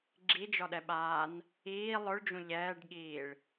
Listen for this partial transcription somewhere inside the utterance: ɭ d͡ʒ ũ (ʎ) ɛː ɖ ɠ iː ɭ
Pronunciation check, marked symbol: correct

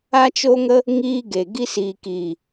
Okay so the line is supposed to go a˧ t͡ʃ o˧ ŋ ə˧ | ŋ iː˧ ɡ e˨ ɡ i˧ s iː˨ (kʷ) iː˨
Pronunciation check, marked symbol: incorrect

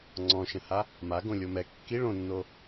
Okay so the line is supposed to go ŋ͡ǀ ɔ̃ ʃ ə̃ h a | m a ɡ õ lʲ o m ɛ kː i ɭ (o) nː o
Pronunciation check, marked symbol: incorrect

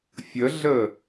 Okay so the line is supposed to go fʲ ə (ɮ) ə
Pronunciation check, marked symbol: correct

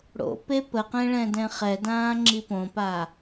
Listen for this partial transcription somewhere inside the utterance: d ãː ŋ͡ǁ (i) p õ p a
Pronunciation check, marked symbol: correct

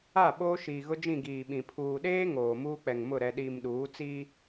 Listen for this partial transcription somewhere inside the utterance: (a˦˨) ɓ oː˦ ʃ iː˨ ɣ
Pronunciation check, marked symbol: correct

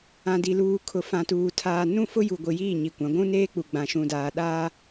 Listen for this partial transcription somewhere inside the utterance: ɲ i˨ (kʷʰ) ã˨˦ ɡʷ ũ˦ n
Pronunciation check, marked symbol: incorrect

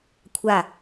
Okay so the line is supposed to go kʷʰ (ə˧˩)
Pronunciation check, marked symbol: incorrect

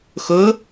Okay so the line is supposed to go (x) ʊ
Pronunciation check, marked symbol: correct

